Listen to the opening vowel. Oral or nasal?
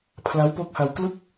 oral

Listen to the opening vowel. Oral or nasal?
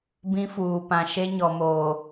nasal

